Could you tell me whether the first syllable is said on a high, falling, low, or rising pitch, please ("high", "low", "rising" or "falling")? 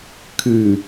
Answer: low